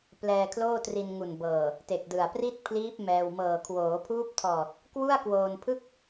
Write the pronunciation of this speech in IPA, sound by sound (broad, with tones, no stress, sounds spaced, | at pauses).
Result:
p l ɛː˧ kʰ l oː˥˩ t r i˧ n ŋ u˨˩ n b ɤː˨˩ | t e˨˩ k̚ d ɯ˨˩ a̯ p r i˥˩ t̚ pʰ l iː˦˥ p̚ m ɛː˧ w m ɤː˨˩ kʰ w oː˩˦ pʰ uː˦˥ p̚ tʰ ɔː˨˩ t̚ | k w u˥˩ a̯ k w oː˧ n pʰ ɯ˥˩ k̚